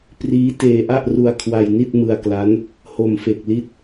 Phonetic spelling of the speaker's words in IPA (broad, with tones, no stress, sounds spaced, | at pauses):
p r iː˦˥ t eː˧ ʔ a˥˩ ʔ r u˧ a̯ kʰ w a˧ j n i˥˩ t̚ m ɯ˧ a̯ k l a˦˥ n | h o˨˩ m f e˨˩ k̚ l i˦˥ t̚